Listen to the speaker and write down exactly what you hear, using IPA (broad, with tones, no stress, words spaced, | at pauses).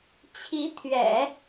t͡ɕʰi˧˥t̪ʰɥɛ̰˨˩˦